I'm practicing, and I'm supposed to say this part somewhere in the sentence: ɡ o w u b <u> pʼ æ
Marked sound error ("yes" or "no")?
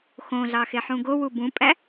yes